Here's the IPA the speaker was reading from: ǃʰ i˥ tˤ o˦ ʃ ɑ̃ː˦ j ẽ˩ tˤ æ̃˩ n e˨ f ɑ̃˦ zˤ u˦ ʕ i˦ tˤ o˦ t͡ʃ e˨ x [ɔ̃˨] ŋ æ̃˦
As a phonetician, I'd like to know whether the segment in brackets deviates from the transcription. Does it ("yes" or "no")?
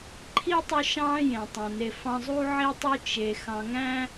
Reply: yes